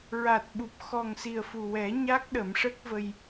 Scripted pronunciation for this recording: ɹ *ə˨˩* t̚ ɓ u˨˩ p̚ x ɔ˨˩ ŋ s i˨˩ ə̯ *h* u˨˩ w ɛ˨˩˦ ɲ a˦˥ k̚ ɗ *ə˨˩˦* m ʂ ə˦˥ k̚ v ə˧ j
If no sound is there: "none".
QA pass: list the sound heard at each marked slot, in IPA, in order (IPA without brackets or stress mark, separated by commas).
a˨˩, f, ə˨˩˦